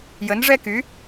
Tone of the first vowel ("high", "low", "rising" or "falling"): rising